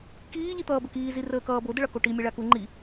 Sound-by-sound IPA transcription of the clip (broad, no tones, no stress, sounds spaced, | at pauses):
k iː ʎ i t̪ ʌː b ə k iː z i r əː k ʌː b o d ə ɭ ʌ k o ʈ i mʲ a ɭ a k u ŋ͡ǃ i